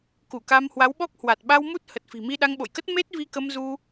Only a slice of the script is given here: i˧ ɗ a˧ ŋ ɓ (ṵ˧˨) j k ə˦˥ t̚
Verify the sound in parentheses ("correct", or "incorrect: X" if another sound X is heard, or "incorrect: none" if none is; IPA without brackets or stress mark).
incorrect: o̰˧˨